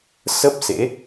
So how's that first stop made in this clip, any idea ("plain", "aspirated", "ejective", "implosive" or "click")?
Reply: plain